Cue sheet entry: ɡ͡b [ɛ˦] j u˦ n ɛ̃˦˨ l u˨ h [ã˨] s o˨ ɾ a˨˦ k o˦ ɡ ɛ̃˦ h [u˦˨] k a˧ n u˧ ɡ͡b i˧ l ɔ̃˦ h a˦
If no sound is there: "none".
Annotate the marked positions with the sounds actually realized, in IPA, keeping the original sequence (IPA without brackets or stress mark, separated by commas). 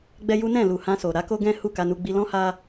ɛ˦, ã˧, u˦˨